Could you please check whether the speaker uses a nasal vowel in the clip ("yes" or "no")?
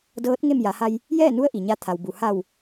no